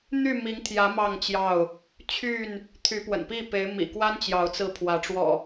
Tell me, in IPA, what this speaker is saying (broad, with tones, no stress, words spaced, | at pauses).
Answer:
n̪y˥˨mi˨˦ŋt̪ʰjä˨˦ mɑ˥˨ŋt͡ɕjɑ˥˨ʊ̯ | t͡ɕʰy˥˨n | t̪ʰy˨˦pwə̰˨˩npi˥˨pe˨˦ɪ̯ mḭ˨˩kwa˦nt͡ɕjɑ˨˦ʊ̯t͡sɹ̩˨˦ pʰwä˨˦ʈ͡ʂwɔ̰˨˩